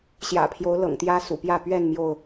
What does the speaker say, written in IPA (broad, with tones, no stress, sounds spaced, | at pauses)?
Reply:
ɕ j ä̰˨˩ pʰ j o˨˦ ʊ̯ l ɤ̰˨˩ ŋ t̪ j ä˦ s ṵ˨˩ p j ä˥˨ p ɥ ɛ˥˨ n m j o˥˨ ʊ̯